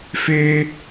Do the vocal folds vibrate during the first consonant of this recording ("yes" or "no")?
no